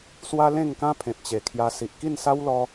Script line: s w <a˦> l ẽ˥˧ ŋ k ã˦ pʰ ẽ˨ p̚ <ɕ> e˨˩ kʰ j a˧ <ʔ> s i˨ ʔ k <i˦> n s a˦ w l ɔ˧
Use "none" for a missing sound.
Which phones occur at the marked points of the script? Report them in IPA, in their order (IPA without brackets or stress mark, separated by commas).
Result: a˦, t͡ɕ, none, i˥˧